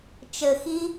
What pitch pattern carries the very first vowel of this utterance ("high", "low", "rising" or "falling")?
low